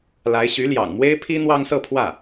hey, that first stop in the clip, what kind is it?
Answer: aspirated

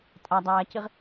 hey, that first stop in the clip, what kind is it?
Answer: ejective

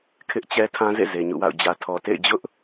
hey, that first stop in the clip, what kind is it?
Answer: aspirated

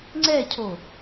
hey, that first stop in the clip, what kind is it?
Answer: click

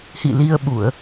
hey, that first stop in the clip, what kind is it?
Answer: implosive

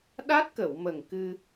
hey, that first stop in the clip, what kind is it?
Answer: implosive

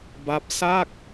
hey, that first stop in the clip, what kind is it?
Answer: plain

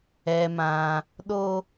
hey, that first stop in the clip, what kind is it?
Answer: implosive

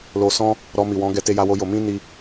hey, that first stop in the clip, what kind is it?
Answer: plain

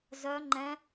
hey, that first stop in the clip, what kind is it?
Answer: click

